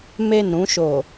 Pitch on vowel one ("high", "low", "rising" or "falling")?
falling